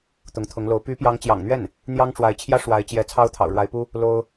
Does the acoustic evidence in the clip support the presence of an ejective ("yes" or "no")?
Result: no